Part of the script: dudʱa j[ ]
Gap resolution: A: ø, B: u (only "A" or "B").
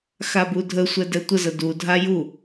B